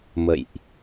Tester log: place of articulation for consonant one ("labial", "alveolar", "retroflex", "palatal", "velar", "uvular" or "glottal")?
labial